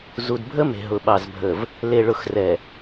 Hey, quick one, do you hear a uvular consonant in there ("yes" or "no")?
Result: no